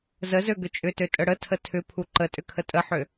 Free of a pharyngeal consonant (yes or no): no